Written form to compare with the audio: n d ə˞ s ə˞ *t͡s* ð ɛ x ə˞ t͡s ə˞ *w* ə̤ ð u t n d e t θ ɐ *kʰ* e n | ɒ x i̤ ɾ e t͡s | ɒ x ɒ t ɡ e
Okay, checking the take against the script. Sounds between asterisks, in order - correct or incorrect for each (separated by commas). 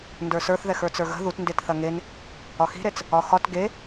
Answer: incorrect, incorrect, incorrect